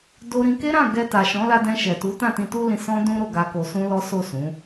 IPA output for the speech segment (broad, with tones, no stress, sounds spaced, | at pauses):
d o˧ ɾ ĩ˧ k e˦ ɾ ã˦˨ ɡ ɛ˧ t a˨ ʃ ɔ̃˨˦ l a˧ d ɛ̃˧ ʃ ɛ˨ t u˨˦ t ã˦˨ t ĩ˧ t u˦ l ĩ˧ s ɔ̃˦ d ũ˦ ɾ o˦˨ ɡ a˧ k o˧ s ũ˦ l ɔ˦ s o˦˨ s ũ˨˦